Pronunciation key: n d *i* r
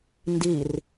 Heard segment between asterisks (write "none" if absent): i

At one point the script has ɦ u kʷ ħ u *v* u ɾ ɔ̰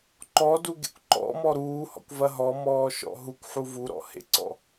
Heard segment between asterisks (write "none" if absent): v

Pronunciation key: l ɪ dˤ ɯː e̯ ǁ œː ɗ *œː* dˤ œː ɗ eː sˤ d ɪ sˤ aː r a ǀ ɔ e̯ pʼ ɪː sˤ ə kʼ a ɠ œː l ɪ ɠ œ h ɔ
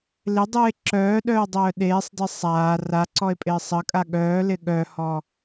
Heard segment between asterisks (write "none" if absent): œː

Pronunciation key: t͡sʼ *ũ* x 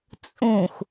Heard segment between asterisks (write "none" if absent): ũ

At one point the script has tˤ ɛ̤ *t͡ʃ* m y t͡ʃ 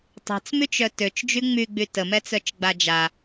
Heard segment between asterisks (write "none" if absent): t͡s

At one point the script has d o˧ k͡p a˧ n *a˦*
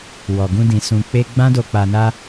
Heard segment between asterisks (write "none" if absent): a˦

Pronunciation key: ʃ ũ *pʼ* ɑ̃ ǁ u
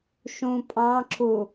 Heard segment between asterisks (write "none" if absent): pʼ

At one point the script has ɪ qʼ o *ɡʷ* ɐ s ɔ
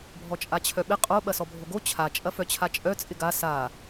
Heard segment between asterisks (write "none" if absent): ɓ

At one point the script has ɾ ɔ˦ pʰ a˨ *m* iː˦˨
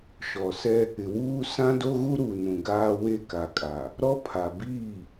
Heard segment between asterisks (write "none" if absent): b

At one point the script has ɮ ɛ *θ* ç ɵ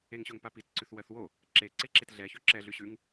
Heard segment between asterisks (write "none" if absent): none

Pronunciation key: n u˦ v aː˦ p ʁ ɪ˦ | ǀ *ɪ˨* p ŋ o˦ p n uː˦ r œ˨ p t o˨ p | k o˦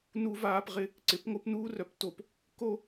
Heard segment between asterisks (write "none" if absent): ɪ˨˦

